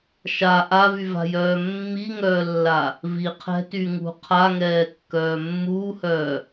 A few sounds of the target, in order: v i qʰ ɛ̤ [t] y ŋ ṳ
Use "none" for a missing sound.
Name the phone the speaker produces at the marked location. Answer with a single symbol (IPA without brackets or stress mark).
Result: t